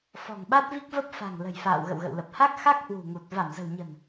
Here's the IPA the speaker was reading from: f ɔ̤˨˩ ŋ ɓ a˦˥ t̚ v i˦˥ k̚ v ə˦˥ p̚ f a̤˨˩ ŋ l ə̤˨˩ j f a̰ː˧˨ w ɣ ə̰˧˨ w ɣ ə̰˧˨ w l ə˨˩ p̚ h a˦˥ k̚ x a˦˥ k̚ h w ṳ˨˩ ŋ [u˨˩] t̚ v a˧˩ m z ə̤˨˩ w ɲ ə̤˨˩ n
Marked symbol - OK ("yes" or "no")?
yes